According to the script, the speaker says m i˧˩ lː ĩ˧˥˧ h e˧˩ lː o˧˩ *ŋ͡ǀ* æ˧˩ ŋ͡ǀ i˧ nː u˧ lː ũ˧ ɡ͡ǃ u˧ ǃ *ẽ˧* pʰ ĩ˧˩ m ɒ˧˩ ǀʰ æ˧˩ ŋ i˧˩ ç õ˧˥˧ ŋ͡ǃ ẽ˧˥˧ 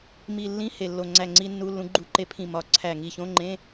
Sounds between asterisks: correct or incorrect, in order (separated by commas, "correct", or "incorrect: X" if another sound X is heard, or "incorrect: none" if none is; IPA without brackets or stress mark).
correct, incorrect: e˧